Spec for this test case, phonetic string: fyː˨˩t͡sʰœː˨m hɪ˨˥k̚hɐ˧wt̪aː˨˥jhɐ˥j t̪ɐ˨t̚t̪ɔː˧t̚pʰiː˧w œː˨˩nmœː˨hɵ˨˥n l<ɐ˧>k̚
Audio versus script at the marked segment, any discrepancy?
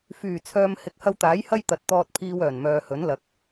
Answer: yes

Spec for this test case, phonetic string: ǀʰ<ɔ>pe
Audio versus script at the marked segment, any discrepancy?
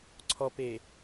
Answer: no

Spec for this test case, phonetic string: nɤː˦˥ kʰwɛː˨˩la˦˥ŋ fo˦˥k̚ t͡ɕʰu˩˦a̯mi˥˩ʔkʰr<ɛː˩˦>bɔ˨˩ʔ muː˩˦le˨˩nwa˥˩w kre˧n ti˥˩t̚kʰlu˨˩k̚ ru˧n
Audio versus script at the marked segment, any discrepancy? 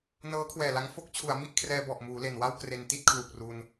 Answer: yes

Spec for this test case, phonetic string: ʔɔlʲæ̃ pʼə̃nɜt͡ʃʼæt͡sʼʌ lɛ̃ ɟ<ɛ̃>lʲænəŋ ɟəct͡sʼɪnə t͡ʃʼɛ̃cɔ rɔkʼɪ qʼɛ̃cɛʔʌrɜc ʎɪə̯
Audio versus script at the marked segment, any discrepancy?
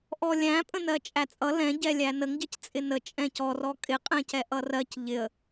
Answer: yes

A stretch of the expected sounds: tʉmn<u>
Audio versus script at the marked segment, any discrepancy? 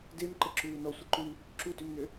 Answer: yes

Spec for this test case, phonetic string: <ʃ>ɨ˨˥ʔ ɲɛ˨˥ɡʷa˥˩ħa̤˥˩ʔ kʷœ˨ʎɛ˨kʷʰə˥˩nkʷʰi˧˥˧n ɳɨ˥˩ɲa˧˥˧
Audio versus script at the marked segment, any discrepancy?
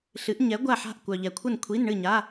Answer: yes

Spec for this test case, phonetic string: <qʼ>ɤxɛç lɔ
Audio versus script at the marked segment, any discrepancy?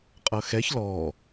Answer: no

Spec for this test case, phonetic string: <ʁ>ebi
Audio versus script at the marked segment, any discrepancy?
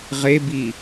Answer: no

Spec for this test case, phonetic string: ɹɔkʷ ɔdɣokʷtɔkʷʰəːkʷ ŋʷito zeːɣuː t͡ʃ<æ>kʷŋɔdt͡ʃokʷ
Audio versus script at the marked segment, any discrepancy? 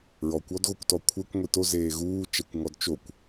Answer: no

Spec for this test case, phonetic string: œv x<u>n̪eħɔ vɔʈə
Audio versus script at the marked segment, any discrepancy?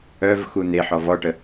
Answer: no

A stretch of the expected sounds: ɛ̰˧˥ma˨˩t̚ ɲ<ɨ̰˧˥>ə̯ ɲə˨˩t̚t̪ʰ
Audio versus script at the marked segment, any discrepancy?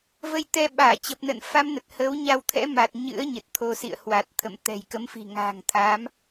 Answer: no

